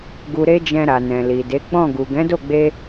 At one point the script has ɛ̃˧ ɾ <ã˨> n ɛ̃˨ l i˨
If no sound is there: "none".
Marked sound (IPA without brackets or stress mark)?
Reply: a˨